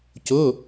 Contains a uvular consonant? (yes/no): no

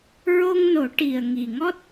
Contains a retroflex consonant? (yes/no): yes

